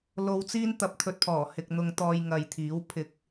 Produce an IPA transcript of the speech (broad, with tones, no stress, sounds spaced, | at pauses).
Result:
l o˧ w t͡s iː˥ n t̪ ɐ˧ p̚ t̪ʰ ɵ˧ t̚ pʰ ɔː˨˩ h ɪ˨ k̚ n̪ ʊ˧ ŋ t̪ ɔː˧ j ŋ ɐ˨ j t̪ʰ iː˨˥ w pʰ ɪ˨˥ k̚